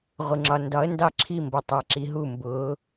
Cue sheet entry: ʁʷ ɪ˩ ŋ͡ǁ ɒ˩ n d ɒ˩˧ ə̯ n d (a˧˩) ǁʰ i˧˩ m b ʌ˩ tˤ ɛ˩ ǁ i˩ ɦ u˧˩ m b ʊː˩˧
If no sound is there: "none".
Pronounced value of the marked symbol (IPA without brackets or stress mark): ɑ˧˩